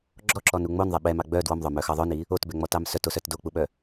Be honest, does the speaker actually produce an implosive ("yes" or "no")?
yes